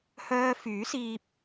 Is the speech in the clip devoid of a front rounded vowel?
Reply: no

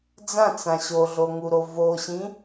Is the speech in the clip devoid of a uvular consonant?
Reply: yes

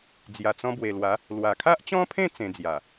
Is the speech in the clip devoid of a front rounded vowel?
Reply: yes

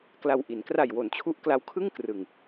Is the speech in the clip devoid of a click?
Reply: yes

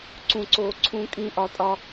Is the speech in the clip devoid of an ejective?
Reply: no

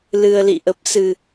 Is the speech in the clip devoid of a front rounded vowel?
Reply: yes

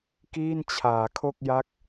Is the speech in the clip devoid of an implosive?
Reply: yes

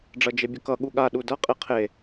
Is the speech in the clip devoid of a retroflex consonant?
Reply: no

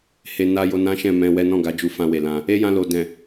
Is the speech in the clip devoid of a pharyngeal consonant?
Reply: yes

